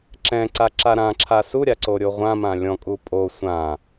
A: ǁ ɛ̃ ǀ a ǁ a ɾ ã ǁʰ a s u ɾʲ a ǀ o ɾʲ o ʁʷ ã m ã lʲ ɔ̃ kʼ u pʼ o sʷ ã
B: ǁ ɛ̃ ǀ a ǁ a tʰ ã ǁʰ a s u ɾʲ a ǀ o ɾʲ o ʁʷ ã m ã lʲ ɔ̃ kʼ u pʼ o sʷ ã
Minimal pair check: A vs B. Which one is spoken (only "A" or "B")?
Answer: A